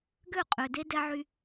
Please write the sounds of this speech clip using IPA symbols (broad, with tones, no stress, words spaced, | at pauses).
ɡø˦˨qʼø˨de˦ dɛ˦ʕy˦